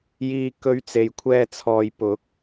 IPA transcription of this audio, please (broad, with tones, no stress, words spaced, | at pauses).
jiː˧ kɵ˧ɥt͡se˨jkʷʰɛː˧t͡sʰɔː˨j pʊ˨˥k̚